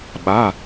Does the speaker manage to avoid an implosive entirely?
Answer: no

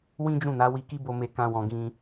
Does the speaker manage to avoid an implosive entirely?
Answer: yes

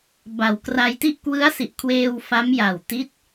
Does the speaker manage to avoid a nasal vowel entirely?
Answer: yes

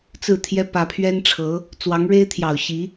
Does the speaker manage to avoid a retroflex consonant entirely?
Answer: no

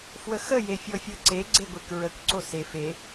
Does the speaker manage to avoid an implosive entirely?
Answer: yes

